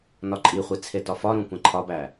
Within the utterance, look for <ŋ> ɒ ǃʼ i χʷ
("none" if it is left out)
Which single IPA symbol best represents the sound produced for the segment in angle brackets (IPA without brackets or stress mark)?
n